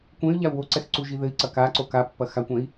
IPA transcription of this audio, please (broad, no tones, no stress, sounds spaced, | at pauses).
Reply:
kʷ ẽ y̯ ʎ a u̯ w o ǀ ɛ x ǀ u ʒ i ð ɘ i̯ ǀ ɐ k a ǀ o k a pː ɐ x a kʷ ɛ̃ i̯